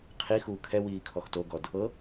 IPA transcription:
qʰ i x uː kʰ ɛ w iː kʰ ɔ x t o ɡ ɔ d | ɤ

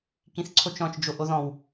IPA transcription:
k ĩ θ ǀʰ o t͡ʃ ɔ̃ t͡ʃ d͡ʒ o ʔ o ð ɔ̃ w

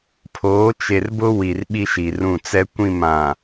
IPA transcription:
pʰ oː˨˦ t͡ʃ e˨ r b ʊ˦ w i˨ r ɓ i˦ ʃ i˨ r ũ˦˨ t͡s ɛ˦ kʷ ĩ˦˨ m ã˨

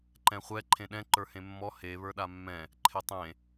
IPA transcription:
ǃ ɛ̃ χʷ ɛ ǃʰ ẽ ɗ ɛ̃ ǃ ə˞ h ẽ mː ɔ h e β ə˞ ɗ a mː ɛ̃ | ǃʰ e tˤ ẽ

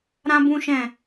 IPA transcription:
ɾ ã˦ b ũ˦ ʃ ɛ̃˦˨

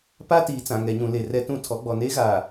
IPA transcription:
p a˦ t iː˨ t͡s ã˨ ŋ ɛ˨ ɲ ũ˨ l e˨ r ɛ˦ t ũ˦ tʰ ɔ˨˦ ɡ͡b ɔ˨ n eː˦ ɣ aː˨

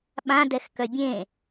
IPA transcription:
ɓ ã d ɛ x k œ bʲ ẽ

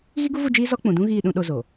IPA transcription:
ɣ i˦ ɡ u˦ v u˦˨ d͡ʒ iː˦ z ɔ˦ k͡p ũ˨ d ũ˦ ɣ iː˦˨ ɗ ũ˦ ɗ o˦ z o˨

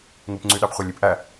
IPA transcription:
ŋ u p ŋ͡ǀ y ɗ ɑ p χʷ æ lʲ i p ʔ æ

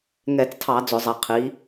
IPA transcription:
ŋ ɛ˧˩˧ t͡s tʰ ɑ˧˩˧ d͡z ʊ˧˩˧ zˤ ɛ˩˥ qʰ i˩˥

